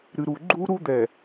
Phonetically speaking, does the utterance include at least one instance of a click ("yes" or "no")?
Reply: yes